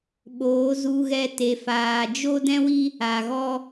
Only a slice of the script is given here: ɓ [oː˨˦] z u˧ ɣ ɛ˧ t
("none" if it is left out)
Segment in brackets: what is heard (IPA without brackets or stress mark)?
oː˨˦